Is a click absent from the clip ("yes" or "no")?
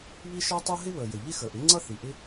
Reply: no